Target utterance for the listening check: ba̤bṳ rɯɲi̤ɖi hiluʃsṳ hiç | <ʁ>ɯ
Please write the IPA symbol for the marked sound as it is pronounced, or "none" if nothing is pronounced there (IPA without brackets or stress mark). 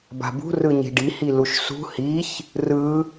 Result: r